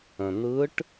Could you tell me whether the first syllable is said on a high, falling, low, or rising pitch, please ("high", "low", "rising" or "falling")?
low